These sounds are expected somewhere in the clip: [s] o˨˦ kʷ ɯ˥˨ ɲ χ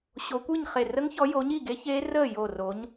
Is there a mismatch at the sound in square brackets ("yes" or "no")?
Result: yes